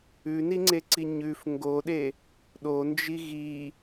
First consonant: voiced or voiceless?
voiced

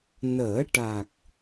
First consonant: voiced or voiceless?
voiced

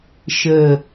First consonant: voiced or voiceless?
voiceless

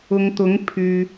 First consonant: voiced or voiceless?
voiced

